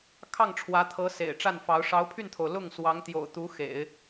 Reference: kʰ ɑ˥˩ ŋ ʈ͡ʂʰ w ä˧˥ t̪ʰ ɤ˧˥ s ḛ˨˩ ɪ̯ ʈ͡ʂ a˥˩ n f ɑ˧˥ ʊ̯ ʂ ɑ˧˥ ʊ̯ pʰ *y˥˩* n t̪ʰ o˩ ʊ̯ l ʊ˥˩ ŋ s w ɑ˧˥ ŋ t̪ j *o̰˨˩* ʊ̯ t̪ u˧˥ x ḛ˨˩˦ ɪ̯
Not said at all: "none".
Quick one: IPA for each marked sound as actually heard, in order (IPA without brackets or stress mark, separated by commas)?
y˥˩, o̰˨˩